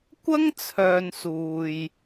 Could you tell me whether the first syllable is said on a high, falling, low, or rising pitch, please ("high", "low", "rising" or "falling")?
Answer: high